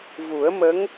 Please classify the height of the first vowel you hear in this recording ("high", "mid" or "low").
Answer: high